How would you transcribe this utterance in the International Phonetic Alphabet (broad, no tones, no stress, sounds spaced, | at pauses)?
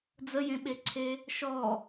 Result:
d͡z ə j ẽ ɓ e ǀʰ e | ʃ ɔ